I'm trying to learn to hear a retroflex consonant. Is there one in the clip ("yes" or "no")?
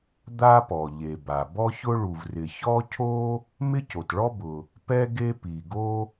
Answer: yes